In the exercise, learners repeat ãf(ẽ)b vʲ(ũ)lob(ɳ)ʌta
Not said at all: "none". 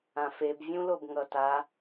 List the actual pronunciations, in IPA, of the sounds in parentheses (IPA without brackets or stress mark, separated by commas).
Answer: e, ũ, ŋ